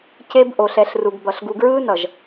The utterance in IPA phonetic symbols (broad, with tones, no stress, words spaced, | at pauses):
ce˦b ʔo˨ɬɛ˨ɬru˨ɡbʌ˨ɬ ɡu˨ɡɹɯː˦nʌ˨ʒ